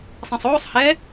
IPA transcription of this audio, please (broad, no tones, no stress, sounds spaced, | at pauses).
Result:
sˤ ɐ̃ sˤ oː sˤ h ɛ